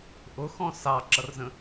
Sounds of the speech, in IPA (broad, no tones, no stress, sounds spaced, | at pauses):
ʔ ʊ x ɔ̃ s ɑ ǁ ʌ r z ə̃